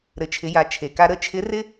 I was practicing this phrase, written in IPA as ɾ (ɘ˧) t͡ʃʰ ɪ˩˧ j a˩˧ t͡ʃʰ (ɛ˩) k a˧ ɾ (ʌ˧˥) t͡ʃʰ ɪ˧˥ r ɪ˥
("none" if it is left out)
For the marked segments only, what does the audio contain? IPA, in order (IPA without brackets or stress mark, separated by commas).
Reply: ɘ˩˧, e˩, ə˧˥